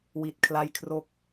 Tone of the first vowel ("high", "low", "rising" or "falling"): low